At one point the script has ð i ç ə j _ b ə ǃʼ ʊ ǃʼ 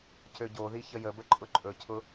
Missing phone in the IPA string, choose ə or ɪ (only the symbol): ə